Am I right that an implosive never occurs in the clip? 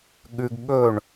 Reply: no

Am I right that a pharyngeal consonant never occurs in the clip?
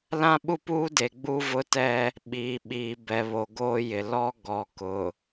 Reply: yes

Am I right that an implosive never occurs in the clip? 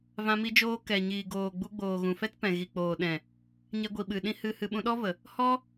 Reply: no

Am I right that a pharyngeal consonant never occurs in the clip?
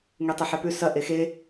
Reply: no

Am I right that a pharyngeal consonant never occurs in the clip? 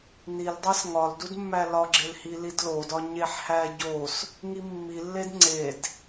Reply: no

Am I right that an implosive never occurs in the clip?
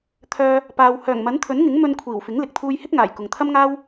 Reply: yes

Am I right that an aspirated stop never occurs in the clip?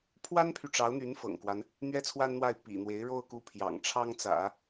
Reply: no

